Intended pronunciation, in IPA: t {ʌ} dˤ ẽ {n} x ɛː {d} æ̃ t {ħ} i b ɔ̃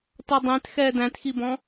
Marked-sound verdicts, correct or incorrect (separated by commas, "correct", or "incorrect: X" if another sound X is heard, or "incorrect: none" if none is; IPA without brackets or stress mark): correct, incorrect: t, correct, incorrect: x